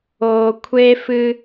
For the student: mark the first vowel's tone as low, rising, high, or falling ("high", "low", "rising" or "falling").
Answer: low